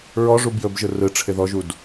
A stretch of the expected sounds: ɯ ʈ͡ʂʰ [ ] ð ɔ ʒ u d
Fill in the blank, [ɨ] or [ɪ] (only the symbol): ɪ